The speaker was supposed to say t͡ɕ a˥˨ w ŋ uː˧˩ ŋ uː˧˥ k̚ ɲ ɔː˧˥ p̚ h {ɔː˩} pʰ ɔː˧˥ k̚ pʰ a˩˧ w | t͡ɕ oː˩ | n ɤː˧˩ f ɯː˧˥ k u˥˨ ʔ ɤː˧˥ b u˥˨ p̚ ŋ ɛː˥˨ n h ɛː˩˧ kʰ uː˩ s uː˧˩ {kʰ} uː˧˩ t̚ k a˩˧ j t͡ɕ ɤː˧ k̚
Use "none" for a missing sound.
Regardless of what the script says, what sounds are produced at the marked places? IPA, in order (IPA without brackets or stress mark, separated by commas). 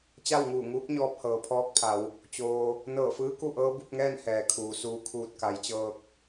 ɤː˩, kʰ